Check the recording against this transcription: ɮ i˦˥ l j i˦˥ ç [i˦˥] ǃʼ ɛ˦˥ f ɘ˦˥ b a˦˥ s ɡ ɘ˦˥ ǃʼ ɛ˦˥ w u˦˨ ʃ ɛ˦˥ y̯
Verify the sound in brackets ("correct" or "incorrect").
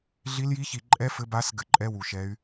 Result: incorrect